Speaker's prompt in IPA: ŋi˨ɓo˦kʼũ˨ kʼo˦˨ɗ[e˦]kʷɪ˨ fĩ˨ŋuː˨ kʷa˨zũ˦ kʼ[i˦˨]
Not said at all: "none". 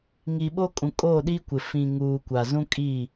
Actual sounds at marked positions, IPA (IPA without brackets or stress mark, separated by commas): i˦, i˦˨